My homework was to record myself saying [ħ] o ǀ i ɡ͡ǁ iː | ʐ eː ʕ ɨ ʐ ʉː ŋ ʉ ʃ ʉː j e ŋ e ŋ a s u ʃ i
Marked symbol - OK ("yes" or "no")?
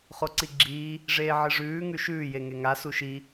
no